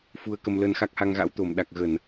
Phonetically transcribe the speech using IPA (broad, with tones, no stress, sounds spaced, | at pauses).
f u˧ ə̯ k ə˧ m l ə˧ n x a˦˥ k̚ h a˧ ŋ ɣ a̰˧˥ w t̪ o˧˩ m ɗ a˨˩ k̚ ɣ ə˧˩˨ n